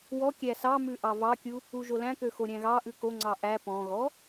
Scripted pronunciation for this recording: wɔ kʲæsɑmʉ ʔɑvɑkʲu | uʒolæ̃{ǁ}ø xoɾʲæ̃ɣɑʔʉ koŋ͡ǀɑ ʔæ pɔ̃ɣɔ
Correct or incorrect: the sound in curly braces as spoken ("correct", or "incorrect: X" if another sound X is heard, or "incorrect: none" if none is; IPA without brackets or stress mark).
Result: incorrect: k